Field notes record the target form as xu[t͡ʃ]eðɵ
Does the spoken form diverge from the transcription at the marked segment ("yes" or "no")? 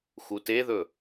yes